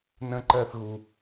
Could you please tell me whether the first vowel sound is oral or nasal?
nasal